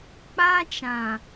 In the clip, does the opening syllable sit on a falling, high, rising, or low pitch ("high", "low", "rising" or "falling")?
high